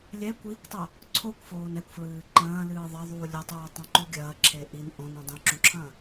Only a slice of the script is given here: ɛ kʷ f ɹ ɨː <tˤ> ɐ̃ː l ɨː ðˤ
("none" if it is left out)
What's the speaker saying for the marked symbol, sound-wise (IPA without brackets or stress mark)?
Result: ǃ